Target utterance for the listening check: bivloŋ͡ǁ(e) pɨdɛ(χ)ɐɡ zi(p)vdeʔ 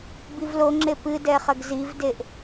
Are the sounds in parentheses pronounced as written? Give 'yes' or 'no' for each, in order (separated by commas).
yes, yes, no